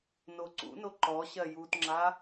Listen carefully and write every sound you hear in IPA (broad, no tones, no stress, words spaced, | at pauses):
noǀṵno ǃɔɕɜ jutŋ͡ǁa